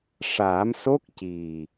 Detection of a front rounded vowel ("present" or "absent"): absent